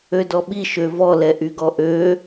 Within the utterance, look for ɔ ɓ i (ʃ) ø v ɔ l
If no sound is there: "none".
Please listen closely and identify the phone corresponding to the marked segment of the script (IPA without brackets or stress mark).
ʃ